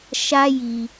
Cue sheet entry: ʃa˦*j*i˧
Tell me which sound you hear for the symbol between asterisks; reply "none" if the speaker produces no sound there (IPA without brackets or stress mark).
j